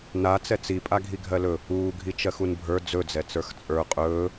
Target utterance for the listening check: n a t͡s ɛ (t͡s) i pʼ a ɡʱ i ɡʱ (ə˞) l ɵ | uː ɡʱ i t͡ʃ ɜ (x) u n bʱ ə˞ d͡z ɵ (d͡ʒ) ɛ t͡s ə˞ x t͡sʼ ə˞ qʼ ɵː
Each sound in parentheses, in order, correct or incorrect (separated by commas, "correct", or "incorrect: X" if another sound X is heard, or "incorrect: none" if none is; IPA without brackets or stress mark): correct, incorrect: ɜ, correct, incorrect: d͡z